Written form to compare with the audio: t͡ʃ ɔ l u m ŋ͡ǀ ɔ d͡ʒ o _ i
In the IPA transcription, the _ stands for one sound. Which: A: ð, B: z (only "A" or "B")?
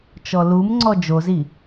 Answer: B